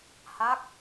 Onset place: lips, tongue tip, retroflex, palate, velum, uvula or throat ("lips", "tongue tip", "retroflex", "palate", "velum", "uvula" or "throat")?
throat